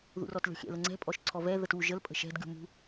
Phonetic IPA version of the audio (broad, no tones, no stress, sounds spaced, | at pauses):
ð ṵ r ɔ t lʲ ɔ̤ xʲ ɛ̰ l ə ŋ͡ǀ ɛ̤ pʼ ɔ ʃ ǀʰ ɔ v ɛ ð ə t u ʒ ə l pʼ ə̤ ʃ ɛ̤ d ɡʲ ṳ m ṳ